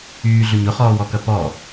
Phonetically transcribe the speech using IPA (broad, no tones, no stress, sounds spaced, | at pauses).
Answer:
yː ɮ ʊ ɲ ʊ χ ɔː w ɔ k ɐ p ɔ